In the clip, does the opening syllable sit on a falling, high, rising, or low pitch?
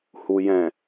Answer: low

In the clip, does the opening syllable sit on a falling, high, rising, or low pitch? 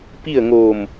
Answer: falling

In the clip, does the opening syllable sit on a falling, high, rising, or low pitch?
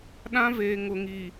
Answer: high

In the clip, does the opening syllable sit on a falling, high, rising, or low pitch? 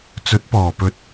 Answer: rising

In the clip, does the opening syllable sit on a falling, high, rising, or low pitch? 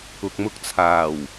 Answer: low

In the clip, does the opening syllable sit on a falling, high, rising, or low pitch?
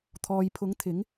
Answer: low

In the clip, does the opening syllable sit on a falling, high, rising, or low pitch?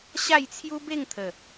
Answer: falling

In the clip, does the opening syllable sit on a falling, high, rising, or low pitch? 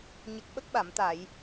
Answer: low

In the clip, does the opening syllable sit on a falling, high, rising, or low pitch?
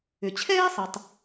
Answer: low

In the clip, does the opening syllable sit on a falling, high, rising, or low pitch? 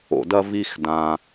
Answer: low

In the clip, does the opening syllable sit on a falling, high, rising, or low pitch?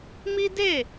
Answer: high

